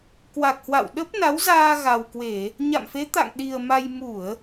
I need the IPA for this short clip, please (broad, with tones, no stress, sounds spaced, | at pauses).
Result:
k w a˨˩ k̚ h w a̰˧˨ w ɗ ə˦˥ p̚ n a˨˦ w z aː˧ ɣ a˨˩ w k w e˧˩˨ | ɲ a̰˧˨ m f e˨˦ t̪ a̰˧˨ ŋ ɗ i˨˩ ə̯ m a˧ j m u˧˩˨ ə̯